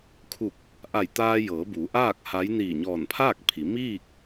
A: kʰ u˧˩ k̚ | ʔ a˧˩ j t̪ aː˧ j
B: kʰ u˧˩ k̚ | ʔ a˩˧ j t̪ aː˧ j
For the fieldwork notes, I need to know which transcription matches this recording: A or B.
A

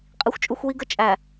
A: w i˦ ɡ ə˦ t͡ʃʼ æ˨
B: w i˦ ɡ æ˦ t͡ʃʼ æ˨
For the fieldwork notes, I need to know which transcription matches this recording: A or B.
A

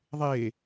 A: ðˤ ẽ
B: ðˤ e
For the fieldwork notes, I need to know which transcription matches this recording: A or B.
B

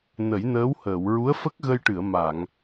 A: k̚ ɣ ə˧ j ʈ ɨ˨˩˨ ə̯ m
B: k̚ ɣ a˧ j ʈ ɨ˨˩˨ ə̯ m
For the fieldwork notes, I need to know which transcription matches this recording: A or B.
A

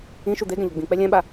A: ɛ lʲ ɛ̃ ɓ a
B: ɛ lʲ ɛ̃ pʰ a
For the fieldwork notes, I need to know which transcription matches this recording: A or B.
A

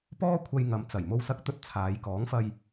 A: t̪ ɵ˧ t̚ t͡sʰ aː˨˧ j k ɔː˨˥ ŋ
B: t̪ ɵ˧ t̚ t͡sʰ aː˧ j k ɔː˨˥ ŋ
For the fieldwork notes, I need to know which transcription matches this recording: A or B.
A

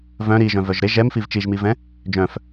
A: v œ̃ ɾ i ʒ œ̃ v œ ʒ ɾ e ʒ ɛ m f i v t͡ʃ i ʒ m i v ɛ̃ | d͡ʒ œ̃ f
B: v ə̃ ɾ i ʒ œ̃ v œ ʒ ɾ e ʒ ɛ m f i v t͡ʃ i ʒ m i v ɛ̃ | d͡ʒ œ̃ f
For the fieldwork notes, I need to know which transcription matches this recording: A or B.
A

